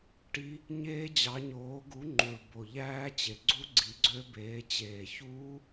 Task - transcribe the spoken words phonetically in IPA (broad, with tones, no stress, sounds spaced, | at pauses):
ʈ i˦˥ | ɲ eː˦˥ d͡ʑ ɑ˨˥ ɲ oː˨˥ ɡ u˨˥ ŋ͡ǃ u˨˩ ɭ b o˨˩ ʎ æː˦˥ t͡ɕ e˨˩ ɡ͡ǀ u˦˥ ɡ͡ǀ i˨˥ ɡ͡ǀ ø˦˥ b eː˨˥ t͡ɕ eː˨˩ ç uː˦˥